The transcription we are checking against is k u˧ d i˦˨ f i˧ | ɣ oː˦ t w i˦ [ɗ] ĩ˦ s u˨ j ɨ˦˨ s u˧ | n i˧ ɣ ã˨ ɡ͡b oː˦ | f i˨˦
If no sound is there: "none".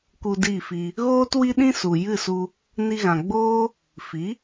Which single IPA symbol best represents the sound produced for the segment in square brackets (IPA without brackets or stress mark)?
ɗ